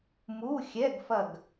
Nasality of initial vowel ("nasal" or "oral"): oral